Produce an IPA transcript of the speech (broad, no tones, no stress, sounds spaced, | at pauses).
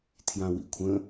tʰ j ã w ḭ kʷʰ ə̃